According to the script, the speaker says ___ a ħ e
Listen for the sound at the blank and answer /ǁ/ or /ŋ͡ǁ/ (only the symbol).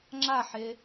ŋ͡ǁ